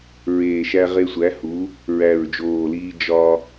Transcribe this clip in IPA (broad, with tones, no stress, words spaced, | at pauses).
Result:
ɹeː˨˩ʃæ˧ʁe˧sʷæ˩˥ hu˩˥ | ɹæ˨˩ɹd͡ʒoː˨˩liː˧ d͡ʒɒ˧